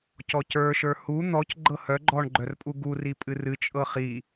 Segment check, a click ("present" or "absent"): present